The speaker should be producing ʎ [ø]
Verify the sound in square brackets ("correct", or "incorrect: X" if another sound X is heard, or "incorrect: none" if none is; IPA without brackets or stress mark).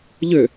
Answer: correct